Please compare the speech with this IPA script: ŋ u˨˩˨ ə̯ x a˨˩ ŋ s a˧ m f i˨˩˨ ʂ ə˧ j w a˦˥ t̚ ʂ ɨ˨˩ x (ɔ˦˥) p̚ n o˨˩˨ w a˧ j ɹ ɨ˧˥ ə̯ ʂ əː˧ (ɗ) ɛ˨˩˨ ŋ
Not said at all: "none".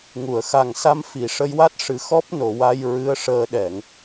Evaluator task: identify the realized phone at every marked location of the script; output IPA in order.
ɔ˦˥, ɗ

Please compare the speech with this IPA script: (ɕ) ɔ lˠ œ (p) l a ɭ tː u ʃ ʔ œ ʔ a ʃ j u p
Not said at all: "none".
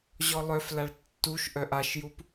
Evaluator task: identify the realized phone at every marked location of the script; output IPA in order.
ʑ, f

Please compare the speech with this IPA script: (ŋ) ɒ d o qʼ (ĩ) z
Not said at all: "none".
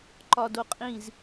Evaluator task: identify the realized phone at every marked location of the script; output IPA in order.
ǃ, ĩ

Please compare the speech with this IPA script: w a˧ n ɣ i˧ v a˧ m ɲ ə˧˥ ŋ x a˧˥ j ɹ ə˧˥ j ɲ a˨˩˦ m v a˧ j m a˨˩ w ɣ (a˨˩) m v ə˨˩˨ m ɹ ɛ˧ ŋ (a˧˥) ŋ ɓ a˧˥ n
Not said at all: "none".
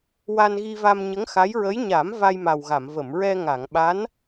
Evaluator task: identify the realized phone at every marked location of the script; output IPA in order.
a˨˩˨, a˨˩˨

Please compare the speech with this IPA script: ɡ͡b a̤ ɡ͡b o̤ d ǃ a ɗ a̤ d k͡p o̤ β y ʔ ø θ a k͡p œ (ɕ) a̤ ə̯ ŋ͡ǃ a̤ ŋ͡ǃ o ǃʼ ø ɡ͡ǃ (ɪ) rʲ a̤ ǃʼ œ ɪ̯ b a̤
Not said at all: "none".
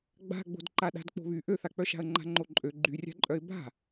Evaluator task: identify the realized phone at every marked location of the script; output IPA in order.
ʃ, y

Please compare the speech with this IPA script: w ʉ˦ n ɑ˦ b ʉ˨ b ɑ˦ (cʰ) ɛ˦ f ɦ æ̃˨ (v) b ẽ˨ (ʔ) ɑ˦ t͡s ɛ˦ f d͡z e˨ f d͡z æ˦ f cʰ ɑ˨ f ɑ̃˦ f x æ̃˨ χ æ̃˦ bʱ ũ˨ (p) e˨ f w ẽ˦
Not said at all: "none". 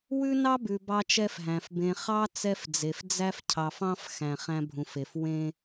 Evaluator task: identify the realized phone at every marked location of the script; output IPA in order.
t͡ʃ, f, χ, f

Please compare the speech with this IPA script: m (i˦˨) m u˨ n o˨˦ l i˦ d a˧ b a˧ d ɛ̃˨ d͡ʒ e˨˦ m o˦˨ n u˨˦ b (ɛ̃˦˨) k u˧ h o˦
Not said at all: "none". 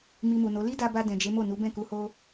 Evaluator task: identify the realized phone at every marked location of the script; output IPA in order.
i˧, ɛ̃˦˨

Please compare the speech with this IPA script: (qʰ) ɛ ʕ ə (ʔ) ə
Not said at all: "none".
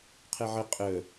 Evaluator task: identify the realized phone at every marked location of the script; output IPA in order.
qʰ, qʼ

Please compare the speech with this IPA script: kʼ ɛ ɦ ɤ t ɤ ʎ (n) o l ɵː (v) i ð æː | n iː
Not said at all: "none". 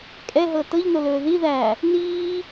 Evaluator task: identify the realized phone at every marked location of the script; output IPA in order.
n, ð

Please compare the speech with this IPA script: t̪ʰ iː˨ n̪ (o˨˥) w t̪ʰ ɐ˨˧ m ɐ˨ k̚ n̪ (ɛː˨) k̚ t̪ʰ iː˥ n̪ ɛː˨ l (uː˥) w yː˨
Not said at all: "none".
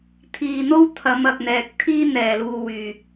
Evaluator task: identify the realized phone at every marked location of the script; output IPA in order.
o˥, ɛː˨, uː˧

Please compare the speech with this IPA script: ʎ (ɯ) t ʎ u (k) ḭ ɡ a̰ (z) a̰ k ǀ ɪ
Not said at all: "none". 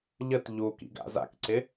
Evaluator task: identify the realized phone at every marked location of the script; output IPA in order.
ə, k, z

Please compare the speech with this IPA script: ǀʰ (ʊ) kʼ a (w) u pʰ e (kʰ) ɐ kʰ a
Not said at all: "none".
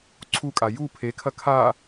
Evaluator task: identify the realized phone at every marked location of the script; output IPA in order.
u, j, kʰ

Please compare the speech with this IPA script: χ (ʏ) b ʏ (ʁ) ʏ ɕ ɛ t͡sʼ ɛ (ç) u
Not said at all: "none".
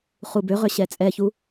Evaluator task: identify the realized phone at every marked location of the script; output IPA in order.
u, ʁ, ç

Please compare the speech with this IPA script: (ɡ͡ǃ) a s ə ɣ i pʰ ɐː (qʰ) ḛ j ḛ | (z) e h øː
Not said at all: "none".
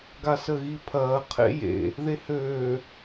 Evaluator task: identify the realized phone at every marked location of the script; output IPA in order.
ɡ, qʰ, ð

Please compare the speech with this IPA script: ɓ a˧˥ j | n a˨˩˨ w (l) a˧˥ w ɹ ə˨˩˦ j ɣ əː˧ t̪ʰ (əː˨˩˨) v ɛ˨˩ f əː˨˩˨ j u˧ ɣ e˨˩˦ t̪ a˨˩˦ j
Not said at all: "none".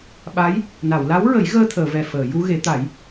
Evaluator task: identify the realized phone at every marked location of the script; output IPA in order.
l, əː˨˩˨

